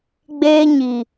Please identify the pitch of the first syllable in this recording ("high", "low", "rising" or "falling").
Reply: high